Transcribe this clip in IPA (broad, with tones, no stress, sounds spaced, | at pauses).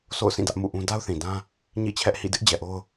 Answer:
sʰ o̰˦˨ ʊ̯ s ĩ˦˨ d ä˦ ʔ m ṵ˦˨ ʔ ũ˦ d a˦ ʊ̯ θ ĩ˨ d ã˦ | ɲ ḭ˦˨ t͡ɕʰ ɛ˦ ʔ h ḭ˦˨ d ɪ˦ ʔ d͡ʑ ɛ˨ ʔ o˦ ʊ̯